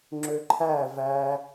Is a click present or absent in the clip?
present